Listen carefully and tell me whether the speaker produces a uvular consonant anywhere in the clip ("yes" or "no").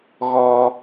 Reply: no